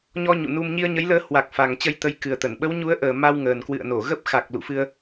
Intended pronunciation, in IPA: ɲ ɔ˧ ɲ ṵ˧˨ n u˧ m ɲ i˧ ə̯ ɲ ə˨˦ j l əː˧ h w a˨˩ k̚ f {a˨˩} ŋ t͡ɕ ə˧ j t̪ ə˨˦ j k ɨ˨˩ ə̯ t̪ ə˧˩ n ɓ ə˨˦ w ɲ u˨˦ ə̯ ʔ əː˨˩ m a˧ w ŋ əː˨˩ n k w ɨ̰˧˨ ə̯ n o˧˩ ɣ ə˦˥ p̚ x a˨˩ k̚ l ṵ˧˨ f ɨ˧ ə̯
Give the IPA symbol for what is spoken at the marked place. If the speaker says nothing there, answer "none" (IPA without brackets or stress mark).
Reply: a˨˩